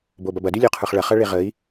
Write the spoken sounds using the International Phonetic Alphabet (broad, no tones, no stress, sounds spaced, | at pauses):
b o b ɐ b ɐ d y lʲ o qʰ ə˞ χ ɭ ɐ χ ɐ ɭ e ʁ ə i̯